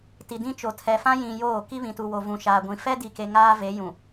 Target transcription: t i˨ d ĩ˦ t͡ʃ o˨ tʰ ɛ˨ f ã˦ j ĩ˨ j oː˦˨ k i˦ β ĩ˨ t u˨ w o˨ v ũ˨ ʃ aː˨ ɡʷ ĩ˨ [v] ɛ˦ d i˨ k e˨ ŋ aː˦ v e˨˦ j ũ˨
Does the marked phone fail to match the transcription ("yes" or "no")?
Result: yes